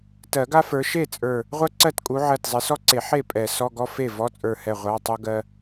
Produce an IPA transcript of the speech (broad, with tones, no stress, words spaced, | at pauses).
tɜ˨˩˦ɡa˥fə˞˨˦ ʃe˥˩ t͡sʼə˞˧˩ | ʁʷɜ˥ǀɜ˥˩tkʼu˨˦ ʕɜ˧˩tzˤe˨˦sɔ˥ǀe˨˩˦ ħe˥˩ pʼɛ˨˩˦sɔ˧˥˧ɡɔ˥ fe˥˩ vɔ˧˥˧t͡sʼə˞˧˩hɛ˧˩ ʁʷa˧˥˧tˤu˥ɡɜ˥